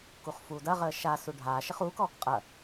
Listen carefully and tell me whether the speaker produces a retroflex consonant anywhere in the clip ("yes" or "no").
yes